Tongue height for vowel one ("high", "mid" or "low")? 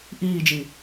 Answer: high